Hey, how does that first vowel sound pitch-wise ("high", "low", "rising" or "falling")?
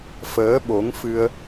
rising